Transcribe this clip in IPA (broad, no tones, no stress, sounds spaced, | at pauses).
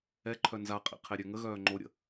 ɛ ǃʰ œ n z a qʼ ḭ qʰ e ɾʲ ø ŋ ə ɣ œː ŋ͡ǃ o ɾʲ ə̰